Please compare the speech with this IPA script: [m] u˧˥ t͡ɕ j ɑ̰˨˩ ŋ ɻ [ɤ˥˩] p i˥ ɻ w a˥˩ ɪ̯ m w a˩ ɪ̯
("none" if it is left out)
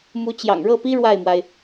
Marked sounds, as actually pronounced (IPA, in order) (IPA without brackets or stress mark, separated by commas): m, ɤ˥˩